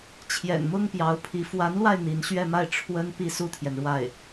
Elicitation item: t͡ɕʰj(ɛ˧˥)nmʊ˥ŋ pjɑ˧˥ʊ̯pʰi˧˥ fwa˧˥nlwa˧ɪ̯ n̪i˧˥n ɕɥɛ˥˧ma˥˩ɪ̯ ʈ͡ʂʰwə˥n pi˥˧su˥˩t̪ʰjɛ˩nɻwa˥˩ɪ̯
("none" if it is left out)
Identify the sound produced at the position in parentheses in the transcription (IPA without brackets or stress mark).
ɛ̰˨˩